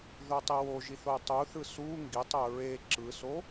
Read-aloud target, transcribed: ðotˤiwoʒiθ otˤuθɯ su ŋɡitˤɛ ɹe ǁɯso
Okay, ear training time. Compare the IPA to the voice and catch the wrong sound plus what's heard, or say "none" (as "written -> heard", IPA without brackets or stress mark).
none